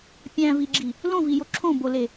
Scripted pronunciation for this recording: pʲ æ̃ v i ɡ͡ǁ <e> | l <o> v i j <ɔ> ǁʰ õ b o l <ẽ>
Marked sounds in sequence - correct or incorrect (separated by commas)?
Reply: incorrect, incorrect, incorrect, incorrect